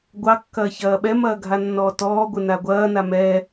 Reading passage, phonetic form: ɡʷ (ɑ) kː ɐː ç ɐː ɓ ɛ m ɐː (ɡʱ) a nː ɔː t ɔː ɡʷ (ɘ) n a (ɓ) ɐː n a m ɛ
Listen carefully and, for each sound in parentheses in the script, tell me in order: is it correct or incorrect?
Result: correct, correct, correct, incorrect: ɡʷ

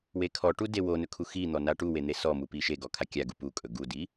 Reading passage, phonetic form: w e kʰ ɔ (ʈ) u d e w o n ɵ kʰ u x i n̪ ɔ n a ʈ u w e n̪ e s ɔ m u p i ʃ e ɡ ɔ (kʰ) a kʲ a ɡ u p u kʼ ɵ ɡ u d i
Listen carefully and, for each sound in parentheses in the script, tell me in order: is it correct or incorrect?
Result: correct, correct

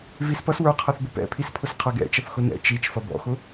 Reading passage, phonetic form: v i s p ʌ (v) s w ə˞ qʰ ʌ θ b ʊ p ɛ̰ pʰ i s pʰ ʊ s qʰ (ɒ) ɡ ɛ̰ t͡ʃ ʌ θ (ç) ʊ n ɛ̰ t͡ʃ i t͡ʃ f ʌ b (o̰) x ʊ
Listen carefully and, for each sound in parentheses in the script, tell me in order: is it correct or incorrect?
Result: incorrect: none, incorrect: ʌ, incorrect: x, incorrect: ɔ̰

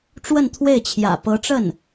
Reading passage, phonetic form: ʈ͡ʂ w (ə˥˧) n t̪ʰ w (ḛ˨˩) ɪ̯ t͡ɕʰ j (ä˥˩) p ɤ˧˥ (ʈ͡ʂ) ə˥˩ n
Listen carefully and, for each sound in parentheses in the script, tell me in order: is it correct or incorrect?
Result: correct, incorrect: e˥˩, incorrect: ä̰˨˩, correct

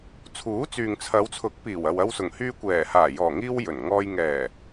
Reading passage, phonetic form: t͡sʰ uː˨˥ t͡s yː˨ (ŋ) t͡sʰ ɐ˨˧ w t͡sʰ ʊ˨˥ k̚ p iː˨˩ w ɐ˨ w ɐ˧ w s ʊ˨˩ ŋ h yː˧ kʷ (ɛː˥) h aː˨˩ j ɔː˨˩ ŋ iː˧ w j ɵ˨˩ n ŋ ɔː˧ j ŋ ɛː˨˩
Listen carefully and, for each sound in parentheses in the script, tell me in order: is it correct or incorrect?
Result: correct, incorrect: ɛː˨˩

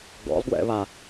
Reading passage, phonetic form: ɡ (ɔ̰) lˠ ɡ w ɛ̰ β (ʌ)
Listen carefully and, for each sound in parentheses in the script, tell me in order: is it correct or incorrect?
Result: correct, incorrect: a

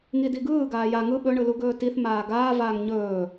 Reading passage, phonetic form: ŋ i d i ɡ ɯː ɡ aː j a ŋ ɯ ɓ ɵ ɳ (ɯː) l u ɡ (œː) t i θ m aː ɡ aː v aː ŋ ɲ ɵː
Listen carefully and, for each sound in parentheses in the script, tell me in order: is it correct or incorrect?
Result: incorrect: ɯ, incorrect: ɵː

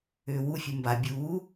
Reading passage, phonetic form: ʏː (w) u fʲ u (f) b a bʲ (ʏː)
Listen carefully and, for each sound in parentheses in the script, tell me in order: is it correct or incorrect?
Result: correct, incorrect: m, incorrect: uː

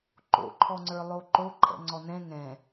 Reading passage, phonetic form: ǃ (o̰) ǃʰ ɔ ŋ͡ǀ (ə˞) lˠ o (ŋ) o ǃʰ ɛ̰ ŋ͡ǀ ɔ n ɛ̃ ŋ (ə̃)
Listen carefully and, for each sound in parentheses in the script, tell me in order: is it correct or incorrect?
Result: correct, correct, incorrect: ǃ, incorrect: ɛ̃

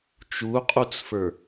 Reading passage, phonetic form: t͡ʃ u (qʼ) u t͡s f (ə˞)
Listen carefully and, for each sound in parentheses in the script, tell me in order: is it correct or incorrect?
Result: correct, correct

